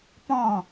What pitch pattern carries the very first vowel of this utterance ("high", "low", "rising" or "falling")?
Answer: falling